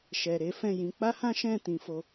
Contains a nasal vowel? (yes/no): yes